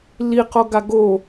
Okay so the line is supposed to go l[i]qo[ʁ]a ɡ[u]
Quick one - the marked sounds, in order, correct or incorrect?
correct, incorrect, incorrect

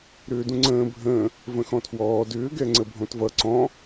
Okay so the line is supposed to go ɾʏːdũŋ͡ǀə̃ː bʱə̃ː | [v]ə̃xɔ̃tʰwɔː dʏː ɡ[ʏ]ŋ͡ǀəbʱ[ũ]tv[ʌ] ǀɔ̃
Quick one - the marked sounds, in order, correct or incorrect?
correct, incorrect, incorrect, correct

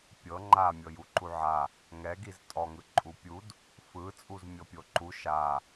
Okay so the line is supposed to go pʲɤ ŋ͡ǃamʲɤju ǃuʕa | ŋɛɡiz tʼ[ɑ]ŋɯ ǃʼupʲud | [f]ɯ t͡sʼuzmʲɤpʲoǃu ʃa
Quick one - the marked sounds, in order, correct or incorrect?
incorrect, correct

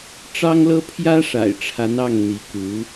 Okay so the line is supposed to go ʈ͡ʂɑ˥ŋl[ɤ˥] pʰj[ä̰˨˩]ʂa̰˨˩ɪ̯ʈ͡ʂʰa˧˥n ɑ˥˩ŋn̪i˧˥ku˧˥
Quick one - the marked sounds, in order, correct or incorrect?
correct, incorrect

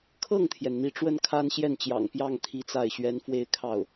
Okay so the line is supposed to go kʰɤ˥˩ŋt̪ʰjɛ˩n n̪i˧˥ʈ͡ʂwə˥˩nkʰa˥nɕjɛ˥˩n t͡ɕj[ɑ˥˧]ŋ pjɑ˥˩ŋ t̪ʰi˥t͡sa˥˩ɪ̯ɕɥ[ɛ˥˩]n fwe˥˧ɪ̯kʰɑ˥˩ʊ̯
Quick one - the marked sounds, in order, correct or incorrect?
incorrect, incorrect

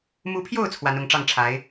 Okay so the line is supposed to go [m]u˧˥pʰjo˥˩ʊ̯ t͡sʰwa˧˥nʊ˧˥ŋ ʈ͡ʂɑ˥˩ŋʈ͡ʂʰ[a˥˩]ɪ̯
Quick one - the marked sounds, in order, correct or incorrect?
correct, incorrect

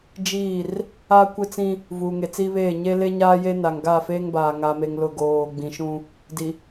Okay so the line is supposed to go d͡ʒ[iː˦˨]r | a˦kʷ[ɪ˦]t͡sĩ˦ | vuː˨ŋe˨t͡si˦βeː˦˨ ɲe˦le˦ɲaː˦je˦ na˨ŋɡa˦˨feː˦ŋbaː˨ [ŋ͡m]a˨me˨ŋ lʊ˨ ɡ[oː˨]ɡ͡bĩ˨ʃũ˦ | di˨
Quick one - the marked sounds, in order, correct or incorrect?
correct, correct, incorrect, correct

